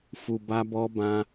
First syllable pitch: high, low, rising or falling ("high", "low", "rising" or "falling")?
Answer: low